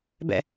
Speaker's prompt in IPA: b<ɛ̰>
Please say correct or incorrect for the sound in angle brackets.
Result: correct